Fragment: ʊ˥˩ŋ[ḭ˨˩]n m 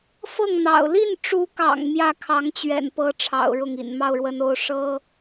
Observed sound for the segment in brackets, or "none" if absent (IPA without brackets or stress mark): ḭ˨˩